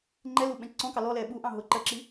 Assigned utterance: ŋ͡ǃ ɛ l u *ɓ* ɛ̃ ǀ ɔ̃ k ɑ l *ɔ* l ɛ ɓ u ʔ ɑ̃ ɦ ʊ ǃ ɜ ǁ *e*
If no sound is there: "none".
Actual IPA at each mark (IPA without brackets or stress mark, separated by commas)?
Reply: ɓ, ɔ, i